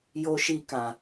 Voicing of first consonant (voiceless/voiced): voiced